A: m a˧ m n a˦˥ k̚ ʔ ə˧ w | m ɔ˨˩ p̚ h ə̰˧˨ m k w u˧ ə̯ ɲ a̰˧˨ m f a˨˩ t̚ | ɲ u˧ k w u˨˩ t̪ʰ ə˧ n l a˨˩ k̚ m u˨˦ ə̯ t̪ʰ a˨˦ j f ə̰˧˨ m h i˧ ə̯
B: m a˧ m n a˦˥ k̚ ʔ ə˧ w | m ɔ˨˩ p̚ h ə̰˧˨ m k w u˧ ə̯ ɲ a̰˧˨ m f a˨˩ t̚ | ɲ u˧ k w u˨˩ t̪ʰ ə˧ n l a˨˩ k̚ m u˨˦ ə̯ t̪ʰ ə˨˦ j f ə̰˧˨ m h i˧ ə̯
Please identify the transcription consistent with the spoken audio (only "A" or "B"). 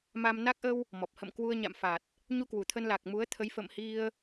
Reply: B